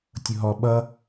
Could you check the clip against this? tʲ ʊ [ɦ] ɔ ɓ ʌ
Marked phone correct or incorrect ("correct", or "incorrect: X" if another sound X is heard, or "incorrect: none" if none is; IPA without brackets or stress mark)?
correct